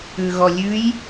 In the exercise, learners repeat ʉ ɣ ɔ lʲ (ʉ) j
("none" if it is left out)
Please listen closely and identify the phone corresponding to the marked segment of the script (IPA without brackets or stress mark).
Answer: ʉ